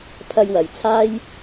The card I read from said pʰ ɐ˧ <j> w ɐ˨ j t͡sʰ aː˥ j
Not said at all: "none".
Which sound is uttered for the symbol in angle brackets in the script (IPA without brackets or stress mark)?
j